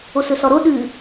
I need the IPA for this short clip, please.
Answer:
osɵsɔɾo ɗʉ

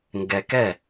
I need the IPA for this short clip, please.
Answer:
ŋɡɛ˧kɛ˥˨

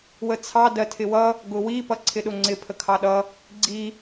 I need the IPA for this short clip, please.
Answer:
wət͡sʰɑ dɜtʰɪwʌ | ɡʊwi pʌǀʰɪɗʊŋ͡ǀɪ pʰəkʰɑɗʌ | ɡ͡ǀi

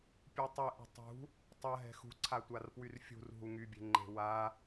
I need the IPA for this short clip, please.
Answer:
pʲutˤeʔṳ tˤṳ | tˤɐɦɛ̤ xṳ ǀʰatʷarpwyrfʲṳr ɦuŋybʲe̤ ŋ͡ǃe̤wa

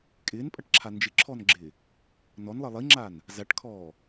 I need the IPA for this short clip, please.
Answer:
kʼɪːnpʼɐʈǁʰa nd͡ʒɪǁʰɔnɡ͡ǁɪː | nɔnlˠə lˠiŋ͡ǁan | zaʈkʰɔː

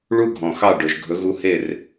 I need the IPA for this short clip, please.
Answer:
ɭu˥ɡʱɔ̃˩ xɑ˥˩ɖɵ˩ʒ ɡʱɵ˩˥ɣu˧ he˥˩r

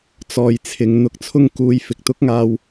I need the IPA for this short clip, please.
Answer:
t͡sɔː˨jt͡sʰɪ˨˧ŋ n̪ʊ˧k̚t͡sʰʊ˥ŋkuː˧j fɪ˨k̚t̪ʊ˥k̚ŋaː˧w

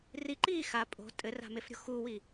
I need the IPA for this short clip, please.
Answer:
riǃiː xa pʼo̤ tʼɘra̤mefɾʲo̤ xuwi

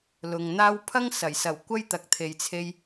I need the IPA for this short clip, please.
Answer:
lʊ˨ŋn̪aː˥w pʰɐ˥ŋsɐ˨˩jsɐ˨˩w kʷɐ˥jt̪ɐ˨k̚t̪ʰe˨jt͡sʰe˧j

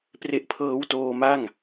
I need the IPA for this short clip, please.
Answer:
pre˦˥ʔpʰɤː˦˥wtoː˧ma˥˩ŋ

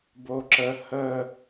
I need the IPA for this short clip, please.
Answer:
boǁə hə

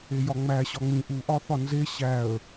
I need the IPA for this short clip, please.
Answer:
ejɒŋ͡mæ ɕɒŋ͡mĩ ʔu ʔɒθɒnze ɕæə̯

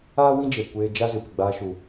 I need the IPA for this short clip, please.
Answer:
aː˦wĩ˦d͡ʒe˨ kʷeː˧d͡ʒa˦ zɨ˨pi˨ɡ͡baː˧ ʃu˨

